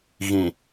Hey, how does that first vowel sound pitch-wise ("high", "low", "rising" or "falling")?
low